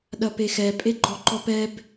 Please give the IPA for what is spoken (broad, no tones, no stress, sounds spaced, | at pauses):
ɗ ɐ p e x ɛ pʼ e ɡ͡ǃ ɔ ǃ ɔ p ɛ b